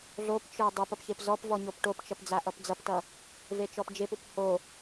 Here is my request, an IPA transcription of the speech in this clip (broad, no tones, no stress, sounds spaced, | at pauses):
ɮ o p t͡ʃ ə˞ dˤ u p ʌ p ç e p z ɔ p v ɔ ɲ o p ʈ o p t͡ʃ ʌ p d͡z a ʔ ʌ p d͡z ʌ p t ʌ | v e t͡ʃ ɔ p d͡ʒ e p u p h o